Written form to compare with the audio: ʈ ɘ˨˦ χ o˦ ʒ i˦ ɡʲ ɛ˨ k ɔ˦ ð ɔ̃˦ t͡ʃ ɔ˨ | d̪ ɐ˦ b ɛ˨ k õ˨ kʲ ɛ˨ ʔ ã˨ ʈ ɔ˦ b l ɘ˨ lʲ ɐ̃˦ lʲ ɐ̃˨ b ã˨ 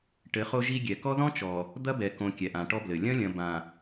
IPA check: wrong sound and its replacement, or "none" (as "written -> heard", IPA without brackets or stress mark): none